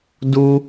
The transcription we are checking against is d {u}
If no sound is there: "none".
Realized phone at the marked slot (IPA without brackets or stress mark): u